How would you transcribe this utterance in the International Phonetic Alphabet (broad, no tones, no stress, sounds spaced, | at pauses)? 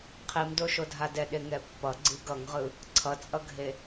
qʰ i m d o ʃ o dʱ a d ɛ ɗ e ŋ ɛ pː ʌ ɡ͡ǀ i ɡ ʌ ŋ ʁ ɯ | ǀʰ ʌ t͡sʼ ʌ ɡʱ e